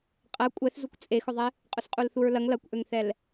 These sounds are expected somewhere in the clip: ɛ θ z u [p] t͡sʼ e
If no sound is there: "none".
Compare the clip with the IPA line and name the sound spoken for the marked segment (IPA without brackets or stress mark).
kʷ